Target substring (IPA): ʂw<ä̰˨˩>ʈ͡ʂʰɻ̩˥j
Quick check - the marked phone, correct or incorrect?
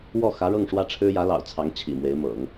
incorrect